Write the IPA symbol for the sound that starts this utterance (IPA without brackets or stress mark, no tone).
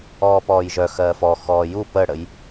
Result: ɔː